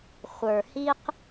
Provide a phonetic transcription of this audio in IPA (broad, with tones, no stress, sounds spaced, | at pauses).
χʷ ə˞˨ h i˦ q